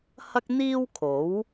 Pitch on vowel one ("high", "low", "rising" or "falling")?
high